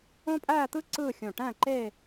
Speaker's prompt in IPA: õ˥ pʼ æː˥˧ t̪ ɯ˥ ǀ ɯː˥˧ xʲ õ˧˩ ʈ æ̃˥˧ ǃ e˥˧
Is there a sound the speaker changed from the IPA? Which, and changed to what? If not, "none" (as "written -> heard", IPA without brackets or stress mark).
none